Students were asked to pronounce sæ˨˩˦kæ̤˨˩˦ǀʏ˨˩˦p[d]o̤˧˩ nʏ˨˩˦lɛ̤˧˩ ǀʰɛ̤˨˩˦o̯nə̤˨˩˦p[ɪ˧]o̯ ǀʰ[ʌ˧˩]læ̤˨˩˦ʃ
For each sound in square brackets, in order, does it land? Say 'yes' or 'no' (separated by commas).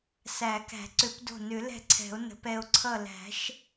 yes, no, yes